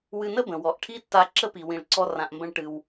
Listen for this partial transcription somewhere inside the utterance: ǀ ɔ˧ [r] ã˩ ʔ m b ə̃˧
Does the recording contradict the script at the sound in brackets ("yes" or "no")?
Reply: no